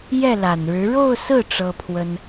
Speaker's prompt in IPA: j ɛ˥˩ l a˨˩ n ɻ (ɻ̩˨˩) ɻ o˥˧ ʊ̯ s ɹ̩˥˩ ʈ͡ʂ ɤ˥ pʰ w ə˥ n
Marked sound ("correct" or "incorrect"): incorrect